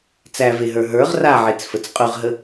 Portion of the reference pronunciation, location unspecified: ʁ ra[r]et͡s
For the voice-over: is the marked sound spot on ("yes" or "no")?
no